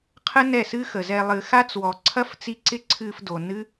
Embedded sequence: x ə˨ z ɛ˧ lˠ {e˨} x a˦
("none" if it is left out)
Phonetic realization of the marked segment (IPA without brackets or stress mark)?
ɨ˨